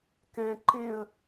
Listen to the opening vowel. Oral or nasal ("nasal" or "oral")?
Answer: nasal